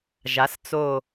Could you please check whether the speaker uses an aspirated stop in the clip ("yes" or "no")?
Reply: no